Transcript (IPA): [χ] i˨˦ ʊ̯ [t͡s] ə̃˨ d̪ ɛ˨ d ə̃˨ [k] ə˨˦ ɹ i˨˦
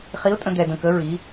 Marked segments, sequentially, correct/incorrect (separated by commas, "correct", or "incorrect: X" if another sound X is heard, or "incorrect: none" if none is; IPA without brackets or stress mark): correct, incorrect: tʼ, correct